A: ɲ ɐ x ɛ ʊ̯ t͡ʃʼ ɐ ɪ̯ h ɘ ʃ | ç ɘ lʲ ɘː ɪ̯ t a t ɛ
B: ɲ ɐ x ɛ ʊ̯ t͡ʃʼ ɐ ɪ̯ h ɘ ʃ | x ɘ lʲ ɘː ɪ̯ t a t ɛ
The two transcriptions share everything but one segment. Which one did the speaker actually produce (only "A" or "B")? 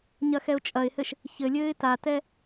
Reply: A